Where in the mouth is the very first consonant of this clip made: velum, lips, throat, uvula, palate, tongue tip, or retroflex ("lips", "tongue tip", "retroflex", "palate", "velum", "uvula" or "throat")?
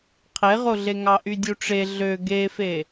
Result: uvula